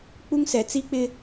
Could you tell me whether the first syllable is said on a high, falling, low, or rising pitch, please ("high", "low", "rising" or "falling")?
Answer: high